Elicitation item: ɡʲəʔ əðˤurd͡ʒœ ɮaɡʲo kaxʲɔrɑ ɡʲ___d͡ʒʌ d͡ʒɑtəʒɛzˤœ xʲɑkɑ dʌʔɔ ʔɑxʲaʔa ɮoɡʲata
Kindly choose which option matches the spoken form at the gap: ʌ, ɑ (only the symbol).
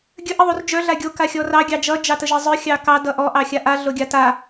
ɑ